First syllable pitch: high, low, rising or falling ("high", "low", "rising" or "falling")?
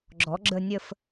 rising